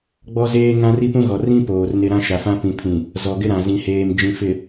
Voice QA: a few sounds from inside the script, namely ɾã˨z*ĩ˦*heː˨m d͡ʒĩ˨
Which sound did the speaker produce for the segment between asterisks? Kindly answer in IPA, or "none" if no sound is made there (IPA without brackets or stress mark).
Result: ĩ˨